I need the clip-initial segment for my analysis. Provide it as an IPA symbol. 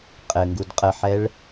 qʼ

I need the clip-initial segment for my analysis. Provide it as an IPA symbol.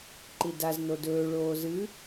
ǃ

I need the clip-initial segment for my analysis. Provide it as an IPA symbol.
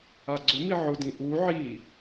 a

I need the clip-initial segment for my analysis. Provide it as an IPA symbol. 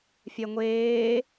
fʲ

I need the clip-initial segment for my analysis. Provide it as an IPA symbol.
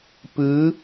p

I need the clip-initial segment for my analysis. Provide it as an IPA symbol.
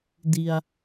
d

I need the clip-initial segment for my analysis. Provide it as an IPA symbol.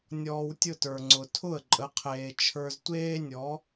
nʲ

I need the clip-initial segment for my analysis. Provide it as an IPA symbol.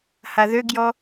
h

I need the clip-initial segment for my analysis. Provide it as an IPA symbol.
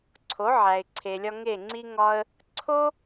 ǀʰ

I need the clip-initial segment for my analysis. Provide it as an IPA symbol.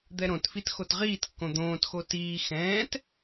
d̪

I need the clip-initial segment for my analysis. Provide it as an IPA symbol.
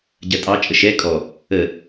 ɟ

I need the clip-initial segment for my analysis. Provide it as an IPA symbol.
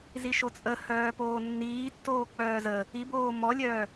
z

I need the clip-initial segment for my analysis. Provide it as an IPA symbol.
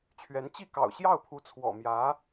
t͡ɕʰ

